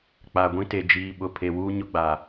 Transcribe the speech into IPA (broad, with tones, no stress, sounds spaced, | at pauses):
k͡p a˨ ɡʷ ĩ˦ t e˨ d͡ʒ iː˨ ɓ ʊ˨ pʰ e˨ w uː˦ ɲ ʊ˦ ɡ͡b a˨